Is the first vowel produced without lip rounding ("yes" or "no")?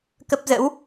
yes